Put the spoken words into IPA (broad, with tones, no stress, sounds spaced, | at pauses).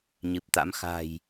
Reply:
ɲ ɨ˨˩ p̚ t̪ a̰˧˥ m x a̤˨˩ j